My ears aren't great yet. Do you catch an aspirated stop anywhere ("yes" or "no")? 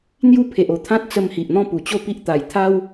yes